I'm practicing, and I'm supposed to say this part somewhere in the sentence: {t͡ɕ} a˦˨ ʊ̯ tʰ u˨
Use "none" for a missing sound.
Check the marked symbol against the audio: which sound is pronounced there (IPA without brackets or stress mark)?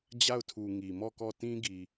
d͡ʑ